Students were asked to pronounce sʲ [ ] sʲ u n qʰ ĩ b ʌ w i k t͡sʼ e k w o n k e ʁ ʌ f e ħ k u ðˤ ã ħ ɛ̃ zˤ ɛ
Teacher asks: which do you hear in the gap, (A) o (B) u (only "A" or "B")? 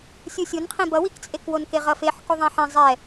B